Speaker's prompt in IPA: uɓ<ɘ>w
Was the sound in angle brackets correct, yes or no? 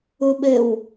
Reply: yes